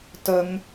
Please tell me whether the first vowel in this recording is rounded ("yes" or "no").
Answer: no